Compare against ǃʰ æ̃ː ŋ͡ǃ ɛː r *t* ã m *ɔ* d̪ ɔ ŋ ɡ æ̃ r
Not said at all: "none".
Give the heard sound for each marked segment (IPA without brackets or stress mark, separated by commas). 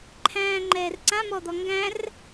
ǀ, ɔ